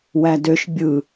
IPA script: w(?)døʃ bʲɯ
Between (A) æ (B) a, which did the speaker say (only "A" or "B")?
A